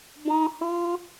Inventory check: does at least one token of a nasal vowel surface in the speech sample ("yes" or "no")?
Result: yes